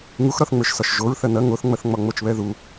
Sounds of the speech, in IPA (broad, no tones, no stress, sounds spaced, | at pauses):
ŋ u x ɾ ɒ θ ŋ͡m ə˞ ʃ s ɒ ʃ ʒ o ɹ θ ɐ n ɐ ŋ o θ ŋ͡m ɐ θ ŋ͡m ɒ ŋ͡m o t͡ʃ β ɛ ð u